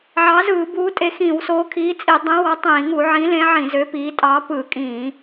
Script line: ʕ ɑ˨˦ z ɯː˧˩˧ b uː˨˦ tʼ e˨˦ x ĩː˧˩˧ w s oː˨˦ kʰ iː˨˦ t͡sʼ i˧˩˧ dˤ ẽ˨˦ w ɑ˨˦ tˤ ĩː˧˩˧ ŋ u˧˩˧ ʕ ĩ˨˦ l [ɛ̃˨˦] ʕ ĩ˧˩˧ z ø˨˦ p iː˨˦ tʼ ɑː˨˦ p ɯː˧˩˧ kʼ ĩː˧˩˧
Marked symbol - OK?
no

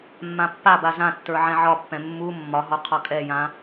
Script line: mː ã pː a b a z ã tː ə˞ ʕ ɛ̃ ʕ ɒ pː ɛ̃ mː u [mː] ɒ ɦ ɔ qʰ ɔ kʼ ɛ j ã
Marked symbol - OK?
yes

